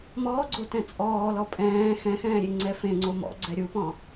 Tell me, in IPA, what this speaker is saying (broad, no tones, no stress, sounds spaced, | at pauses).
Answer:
m ɔː ɡ͡ǀ o t ɛ̃ t͡sʼ ɔː l ɔ pʼ ɛ̃ː x ɛ̃ x ɛ̃ː ɾʲ e ŋ͡ǀ ɛ f ẽ ŋ͡ǀ o m ɔ̰ ɡ͡ǀ ɛ ɾʲ u p ɔ̃